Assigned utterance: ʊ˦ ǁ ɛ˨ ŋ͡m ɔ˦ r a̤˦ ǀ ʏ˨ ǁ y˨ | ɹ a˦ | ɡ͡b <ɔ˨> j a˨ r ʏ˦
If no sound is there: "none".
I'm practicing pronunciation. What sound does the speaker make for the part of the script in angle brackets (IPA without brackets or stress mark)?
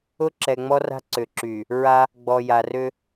ɔ˨